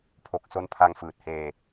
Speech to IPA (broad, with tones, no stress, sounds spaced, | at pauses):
pʰ o˨˩ k̚ s o˦˥ n pʰ a˧ ŋ f ɯː˨˩ t̚ h eː˧